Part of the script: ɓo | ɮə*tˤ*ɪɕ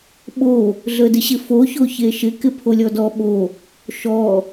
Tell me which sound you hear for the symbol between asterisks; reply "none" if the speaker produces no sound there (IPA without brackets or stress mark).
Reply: d